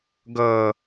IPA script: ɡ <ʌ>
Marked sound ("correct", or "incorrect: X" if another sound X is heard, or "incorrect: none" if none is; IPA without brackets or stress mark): correct